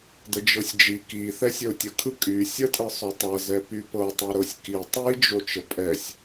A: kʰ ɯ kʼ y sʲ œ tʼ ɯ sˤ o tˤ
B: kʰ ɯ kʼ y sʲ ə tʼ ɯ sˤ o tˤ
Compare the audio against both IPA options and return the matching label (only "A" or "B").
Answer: B